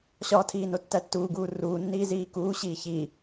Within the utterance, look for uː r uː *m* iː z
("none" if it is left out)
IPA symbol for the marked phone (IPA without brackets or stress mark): nː